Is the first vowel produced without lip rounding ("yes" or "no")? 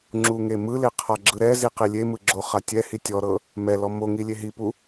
no